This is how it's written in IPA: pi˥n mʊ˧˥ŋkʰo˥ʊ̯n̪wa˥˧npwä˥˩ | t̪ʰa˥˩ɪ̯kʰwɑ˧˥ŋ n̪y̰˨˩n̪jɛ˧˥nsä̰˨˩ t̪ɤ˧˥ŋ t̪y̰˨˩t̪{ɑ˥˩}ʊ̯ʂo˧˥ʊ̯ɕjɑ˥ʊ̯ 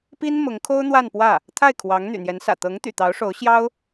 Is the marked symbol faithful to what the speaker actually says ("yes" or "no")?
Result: no